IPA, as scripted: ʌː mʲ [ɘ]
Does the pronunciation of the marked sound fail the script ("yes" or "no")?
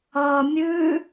yes